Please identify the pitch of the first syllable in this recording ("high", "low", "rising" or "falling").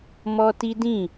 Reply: high